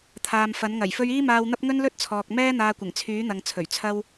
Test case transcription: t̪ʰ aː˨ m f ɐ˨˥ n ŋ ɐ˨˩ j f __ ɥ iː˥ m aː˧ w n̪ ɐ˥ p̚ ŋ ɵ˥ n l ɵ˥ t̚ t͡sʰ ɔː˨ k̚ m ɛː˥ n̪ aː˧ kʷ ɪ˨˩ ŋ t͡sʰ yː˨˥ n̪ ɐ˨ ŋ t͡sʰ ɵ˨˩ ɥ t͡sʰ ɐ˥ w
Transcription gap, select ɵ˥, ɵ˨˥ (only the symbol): ɵ˥